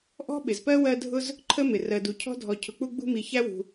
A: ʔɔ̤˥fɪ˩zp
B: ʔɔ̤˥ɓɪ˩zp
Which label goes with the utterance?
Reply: B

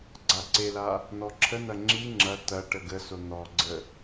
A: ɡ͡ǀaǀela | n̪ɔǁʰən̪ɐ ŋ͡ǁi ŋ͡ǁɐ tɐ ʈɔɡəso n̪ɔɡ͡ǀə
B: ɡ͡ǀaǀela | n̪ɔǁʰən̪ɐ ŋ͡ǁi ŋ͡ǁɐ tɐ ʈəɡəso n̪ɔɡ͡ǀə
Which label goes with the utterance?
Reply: B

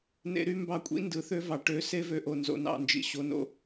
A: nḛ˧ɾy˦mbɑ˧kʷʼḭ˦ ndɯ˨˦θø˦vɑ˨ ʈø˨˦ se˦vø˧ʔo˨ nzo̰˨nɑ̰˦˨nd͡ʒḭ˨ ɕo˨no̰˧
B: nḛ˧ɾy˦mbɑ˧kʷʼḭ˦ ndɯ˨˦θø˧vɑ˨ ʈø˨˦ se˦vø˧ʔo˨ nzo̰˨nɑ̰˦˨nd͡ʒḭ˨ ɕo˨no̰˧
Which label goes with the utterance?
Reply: A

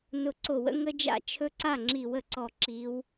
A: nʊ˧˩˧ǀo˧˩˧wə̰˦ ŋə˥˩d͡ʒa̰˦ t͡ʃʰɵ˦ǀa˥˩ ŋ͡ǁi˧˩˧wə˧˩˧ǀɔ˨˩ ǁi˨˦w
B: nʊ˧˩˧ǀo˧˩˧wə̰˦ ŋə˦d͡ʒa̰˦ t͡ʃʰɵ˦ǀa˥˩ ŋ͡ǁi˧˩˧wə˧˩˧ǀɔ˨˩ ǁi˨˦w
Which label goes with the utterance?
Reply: B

